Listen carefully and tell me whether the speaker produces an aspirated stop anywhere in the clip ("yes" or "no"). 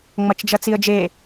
no